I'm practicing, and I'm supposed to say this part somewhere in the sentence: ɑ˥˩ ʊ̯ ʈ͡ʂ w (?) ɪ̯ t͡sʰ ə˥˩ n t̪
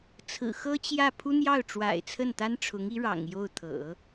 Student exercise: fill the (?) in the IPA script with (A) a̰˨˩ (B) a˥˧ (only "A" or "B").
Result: A